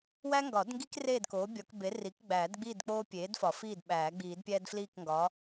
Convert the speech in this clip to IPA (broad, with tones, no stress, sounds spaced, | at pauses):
w æ˦ ŋ ɡ ɒ˨˩˦ d ŋ ɡ i˦ k r eː˥˨ d k oː˩˥ bʲ ɒ˨˩˦ k b e˩˥ r i˩˥ k ɡ͡b æː˨˩˦ d ɡ͡b i˥˨ d k͡p oː˦ pʲ eː˩˥ d f ɒ˨˩˦ f iː˥˨ d ɓ æː˨˩˦ ɡ͡b iː˨˩˦ d pʲ æː˦ d f l iː˥˨ k ŋ ɡ ɒː˩˥